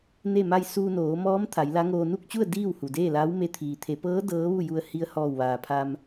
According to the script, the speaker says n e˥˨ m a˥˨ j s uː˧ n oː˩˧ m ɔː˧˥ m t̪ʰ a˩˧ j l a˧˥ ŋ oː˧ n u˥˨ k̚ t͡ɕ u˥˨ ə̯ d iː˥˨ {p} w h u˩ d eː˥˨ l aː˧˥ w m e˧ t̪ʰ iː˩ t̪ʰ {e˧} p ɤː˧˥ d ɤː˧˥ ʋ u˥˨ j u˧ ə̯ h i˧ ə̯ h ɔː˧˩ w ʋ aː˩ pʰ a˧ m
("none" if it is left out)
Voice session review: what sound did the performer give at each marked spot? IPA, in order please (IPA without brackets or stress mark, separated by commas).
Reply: none, e˩˧